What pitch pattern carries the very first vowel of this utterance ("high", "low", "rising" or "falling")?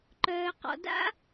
low